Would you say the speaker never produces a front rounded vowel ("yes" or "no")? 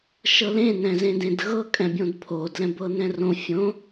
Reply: yes